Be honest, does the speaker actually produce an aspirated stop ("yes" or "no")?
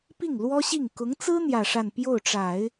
no